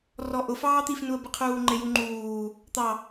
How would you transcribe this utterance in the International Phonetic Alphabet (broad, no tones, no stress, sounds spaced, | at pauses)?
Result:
r ɔ ʔ ʊ f ɑː t̪ i f n u ə̯ b ɪ qʰ uː ŋ͡ǃ ɪ j u ŋ͡ǃ uː | t̪ ɑ